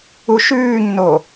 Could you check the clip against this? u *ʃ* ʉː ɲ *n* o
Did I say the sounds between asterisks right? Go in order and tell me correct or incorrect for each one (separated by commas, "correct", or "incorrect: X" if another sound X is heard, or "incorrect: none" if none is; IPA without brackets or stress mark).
correct, correct